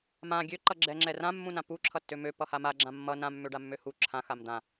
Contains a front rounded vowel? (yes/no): yes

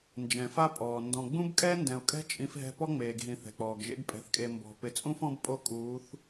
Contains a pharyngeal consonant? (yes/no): no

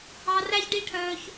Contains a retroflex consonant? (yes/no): yes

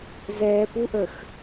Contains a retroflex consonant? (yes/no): no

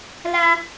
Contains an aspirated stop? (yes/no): no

